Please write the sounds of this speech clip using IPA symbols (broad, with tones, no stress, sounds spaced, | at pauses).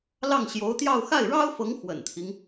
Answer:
l ɑ˥˩ ŋ ɕ j o˧˥ ʊ̯ t̪ j ɑ˥˧ ʊ̯ x a˥˩ ɪ̯ ɻ ɑ˥ ʊ̯ f ɤ˧˥ ŋ x w ə̰˨˩ n t̪ʰ i˦ ŋ